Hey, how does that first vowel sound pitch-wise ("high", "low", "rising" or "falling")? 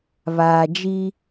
low